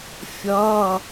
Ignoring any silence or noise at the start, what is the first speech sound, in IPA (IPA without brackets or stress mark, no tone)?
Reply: fʲ